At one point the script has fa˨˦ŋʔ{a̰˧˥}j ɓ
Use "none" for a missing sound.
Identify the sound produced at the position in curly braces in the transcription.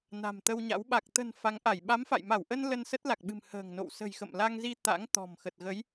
a˧˩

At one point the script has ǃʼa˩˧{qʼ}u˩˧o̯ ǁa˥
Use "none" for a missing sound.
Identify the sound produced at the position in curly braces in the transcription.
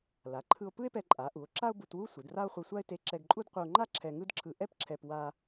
ʔ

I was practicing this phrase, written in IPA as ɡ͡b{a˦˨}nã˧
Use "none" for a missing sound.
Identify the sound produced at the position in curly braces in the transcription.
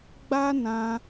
a˦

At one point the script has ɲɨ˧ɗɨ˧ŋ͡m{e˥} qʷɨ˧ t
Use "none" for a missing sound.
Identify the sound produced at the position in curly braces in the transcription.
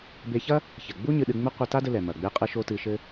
ɘ˥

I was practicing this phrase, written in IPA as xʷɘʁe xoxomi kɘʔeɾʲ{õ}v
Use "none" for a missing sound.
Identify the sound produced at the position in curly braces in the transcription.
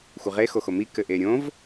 õ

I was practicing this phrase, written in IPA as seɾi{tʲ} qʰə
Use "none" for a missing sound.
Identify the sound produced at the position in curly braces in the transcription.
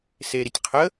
tʲ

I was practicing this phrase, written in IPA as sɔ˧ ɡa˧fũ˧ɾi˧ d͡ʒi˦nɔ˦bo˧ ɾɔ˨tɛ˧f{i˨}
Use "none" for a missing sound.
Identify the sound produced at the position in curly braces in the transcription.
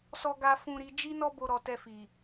i˨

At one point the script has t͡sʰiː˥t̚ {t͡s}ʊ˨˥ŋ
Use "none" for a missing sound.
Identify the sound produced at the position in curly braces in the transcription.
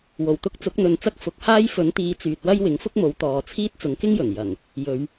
t͡s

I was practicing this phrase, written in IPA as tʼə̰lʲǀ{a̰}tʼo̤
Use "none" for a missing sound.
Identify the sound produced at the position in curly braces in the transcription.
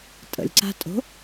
a̤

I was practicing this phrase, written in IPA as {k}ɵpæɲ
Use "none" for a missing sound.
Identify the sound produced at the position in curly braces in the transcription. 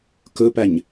k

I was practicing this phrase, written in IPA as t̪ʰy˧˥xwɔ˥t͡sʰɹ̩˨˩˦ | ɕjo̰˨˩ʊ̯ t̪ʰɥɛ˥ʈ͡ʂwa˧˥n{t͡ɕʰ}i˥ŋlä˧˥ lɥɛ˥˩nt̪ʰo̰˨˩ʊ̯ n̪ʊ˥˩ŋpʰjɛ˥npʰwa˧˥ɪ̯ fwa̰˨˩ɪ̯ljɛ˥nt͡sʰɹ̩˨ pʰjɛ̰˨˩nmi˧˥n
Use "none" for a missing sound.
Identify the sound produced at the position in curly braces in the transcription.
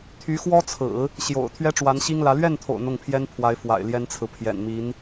ɕ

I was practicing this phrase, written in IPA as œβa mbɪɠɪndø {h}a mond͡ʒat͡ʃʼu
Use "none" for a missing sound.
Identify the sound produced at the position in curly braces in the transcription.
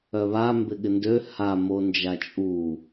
h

